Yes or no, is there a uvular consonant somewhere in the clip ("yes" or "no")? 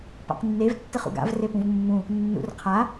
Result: yes